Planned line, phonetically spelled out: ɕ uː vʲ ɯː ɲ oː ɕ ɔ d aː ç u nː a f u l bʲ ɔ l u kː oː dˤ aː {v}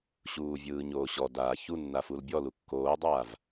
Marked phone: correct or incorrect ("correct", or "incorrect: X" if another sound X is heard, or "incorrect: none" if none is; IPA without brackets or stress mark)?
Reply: correct